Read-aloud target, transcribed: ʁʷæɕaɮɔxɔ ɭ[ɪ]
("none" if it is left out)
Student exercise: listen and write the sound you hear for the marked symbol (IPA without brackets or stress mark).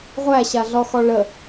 ə